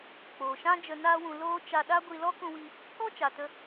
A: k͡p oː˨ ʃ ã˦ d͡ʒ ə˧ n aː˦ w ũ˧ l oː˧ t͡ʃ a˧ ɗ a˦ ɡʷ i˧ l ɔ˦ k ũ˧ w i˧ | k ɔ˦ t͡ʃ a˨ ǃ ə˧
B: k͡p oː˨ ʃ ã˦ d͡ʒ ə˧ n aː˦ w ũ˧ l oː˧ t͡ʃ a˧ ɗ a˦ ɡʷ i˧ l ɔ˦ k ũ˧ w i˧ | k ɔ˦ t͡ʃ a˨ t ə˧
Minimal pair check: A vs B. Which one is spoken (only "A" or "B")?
B